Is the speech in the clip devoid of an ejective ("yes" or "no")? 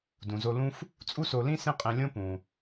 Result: no